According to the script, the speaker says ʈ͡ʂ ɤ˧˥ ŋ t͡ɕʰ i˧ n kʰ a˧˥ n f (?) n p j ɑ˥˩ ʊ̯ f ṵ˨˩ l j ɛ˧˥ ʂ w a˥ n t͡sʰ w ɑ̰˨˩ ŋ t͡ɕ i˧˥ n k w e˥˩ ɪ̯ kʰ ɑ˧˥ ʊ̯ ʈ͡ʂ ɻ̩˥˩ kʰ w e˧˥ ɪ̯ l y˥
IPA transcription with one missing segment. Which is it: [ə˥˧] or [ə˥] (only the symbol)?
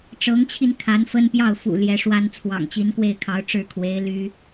ə˥